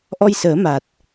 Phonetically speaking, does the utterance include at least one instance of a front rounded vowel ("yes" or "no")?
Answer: no